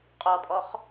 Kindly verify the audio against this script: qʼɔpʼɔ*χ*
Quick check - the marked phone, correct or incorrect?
correct